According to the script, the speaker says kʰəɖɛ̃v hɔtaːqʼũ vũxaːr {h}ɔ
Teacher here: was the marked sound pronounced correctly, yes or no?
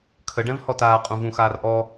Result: no